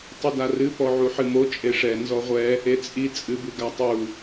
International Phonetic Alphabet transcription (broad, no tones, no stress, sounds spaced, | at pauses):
tˤ ɨ d a r ɨ p ɔ ʕ u ħ ɨ m o t͡ʃʼ e ʂ ɛ n z ɔ ʁʷ ɛ | e t͡sʼ i t͡sʼ ɨ b ɨ ɡ a tˤ u